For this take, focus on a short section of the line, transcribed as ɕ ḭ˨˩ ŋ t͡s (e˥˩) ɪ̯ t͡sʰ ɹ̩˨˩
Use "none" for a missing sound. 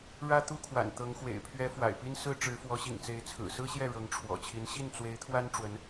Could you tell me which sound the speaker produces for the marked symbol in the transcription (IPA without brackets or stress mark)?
e˧˥